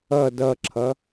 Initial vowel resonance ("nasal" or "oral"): oral